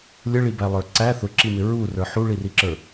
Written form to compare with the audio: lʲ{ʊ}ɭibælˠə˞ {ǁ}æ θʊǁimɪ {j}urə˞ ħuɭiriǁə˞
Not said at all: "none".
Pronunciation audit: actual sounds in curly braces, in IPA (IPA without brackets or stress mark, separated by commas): ə, ǀ, ɹ